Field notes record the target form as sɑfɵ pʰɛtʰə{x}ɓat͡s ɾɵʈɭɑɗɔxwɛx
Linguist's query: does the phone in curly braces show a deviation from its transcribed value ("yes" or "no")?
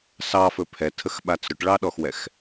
no